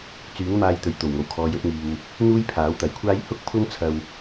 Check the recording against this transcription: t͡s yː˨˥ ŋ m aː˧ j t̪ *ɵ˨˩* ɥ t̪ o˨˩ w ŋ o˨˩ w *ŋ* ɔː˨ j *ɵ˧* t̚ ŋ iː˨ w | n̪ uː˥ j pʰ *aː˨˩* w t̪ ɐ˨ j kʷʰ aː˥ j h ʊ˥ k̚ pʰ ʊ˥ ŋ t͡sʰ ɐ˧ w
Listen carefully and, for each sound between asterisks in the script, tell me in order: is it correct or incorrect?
correct, incorrect, correct, incorrect

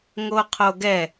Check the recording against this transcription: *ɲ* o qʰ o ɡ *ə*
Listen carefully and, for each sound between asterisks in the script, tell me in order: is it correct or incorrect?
incorrect, incorrect

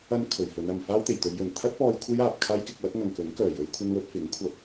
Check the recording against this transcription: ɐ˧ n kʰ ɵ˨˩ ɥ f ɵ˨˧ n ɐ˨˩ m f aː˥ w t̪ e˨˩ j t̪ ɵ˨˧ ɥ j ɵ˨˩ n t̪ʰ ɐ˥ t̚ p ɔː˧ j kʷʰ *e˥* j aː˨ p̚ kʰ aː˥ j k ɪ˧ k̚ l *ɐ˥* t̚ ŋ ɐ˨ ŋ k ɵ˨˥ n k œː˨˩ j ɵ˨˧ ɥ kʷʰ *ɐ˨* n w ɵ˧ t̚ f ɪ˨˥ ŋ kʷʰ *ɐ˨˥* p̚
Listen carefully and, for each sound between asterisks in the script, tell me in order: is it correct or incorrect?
correct, correct, incorrect, incorrect

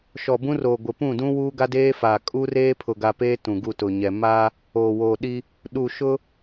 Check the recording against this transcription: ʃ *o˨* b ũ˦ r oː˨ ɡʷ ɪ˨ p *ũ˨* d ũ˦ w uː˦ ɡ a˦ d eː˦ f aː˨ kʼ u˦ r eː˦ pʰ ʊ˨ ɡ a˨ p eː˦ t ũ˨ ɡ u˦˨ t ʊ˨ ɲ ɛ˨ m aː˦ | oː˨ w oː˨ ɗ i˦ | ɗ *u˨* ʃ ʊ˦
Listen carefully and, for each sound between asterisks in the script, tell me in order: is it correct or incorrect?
incorrect, incorrect, correct

